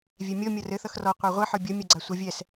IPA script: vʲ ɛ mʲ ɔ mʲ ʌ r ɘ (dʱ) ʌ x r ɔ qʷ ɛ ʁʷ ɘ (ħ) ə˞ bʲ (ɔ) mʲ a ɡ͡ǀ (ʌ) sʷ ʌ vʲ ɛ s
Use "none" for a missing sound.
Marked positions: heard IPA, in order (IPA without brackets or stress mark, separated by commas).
θ, ħ, ʌ, a